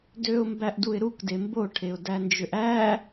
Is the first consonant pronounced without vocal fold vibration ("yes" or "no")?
no